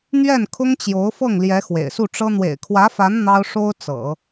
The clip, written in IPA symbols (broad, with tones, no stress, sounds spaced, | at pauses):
n̪ ɥ ɛ˥˩ n kʰ ʊ˥ ŋ t͡ɕ j o˧˥ ʊ̯ f ɤ˥˩ ŋ l j ɛ˧˥ x w ḛ˨˩ ɪ̯ s u˥˩ ʈ͡ʂ ɤ˥ n̪ w ḛ˨˩ ɪ̯ kʰ w ä˧˥ f a˧˥ n n̪ ɑ˥ ʊ̯ ʂ o˥ ʊ̯ t͡s ɤ̰˨˩˦